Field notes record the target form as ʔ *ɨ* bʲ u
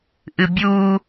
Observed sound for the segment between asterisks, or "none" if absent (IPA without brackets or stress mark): ɨ